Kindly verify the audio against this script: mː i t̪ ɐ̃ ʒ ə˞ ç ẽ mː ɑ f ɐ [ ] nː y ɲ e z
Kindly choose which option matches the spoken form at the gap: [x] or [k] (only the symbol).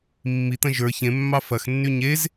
x